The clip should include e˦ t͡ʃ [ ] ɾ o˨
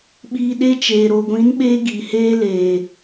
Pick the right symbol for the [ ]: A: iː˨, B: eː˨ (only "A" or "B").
B